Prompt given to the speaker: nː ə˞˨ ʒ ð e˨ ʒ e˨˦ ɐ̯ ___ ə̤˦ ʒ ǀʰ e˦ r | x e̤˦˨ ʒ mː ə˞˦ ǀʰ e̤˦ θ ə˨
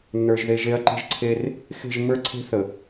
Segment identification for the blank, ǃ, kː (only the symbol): ǃ